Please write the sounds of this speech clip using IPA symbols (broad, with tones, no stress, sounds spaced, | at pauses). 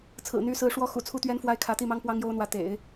t͡sʰ ɹ̩˨˩ n̪ y˧˥ s ɹ̩˧˥ ʂ w ɔ˥ x ṵ˨˩ t͡sʰ u˥ t̪ ɥ ɛ˥ n f w a˥ ɪ̯ kʰ ä˧˥ t̪ i˥˩ m ɑ˥ ŋ p w ɑ˥ ŋ j o˥ ʊ̯ n̪ w ä˧˥ t̪ ḛ˨˩˦ ɪ̯